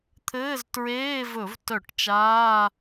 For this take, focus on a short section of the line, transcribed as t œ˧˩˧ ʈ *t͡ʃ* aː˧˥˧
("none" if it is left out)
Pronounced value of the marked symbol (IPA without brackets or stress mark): t͡ʃ